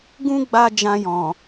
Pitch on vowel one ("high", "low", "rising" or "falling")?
high